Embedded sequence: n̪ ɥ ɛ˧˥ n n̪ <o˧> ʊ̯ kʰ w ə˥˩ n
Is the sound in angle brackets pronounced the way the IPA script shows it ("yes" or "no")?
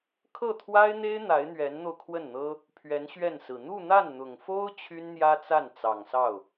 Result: yes